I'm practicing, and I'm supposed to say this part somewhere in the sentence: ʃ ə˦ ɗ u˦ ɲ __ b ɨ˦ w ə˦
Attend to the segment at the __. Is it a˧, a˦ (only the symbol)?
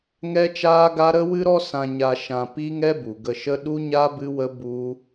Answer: a˦